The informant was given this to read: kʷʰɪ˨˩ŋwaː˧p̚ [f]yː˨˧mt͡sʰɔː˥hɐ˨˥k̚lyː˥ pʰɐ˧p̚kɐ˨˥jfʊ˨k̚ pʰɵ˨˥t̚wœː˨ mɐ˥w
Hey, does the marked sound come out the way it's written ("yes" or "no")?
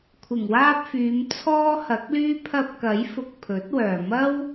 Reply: yes